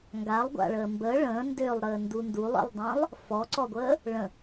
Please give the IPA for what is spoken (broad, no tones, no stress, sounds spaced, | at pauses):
ŋ ɡ a lˠ ɡʷ a̰ ɭ əː m b ə ɭ ə̃ː n d ø lˠ ɾ əː n d u n d u lˠ ḭ lˠ dˤ ə̃ː lˠ | f ɔ ǀ ɔ ɡʷ əː | ɭ ə̃